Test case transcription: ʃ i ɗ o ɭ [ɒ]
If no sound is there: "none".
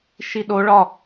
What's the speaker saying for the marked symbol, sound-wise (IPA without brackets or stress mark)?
ɒ